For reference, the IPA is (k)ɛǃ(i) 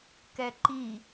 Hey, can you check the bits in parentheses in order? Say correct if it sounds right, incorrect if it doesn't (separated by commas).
correct, correct